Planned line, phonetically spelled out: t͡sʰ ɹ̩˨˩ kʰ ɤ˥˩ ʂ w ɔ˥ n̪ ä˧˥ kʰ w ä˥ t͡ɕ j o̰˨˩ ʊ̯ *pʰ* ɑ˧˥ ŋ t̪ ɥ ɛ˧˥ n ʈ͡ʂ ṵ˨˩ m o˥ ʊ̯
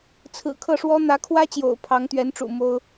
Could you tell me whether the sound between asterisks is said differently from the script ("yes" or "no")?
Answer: no